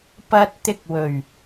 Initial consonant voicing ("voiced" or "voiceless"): voiceless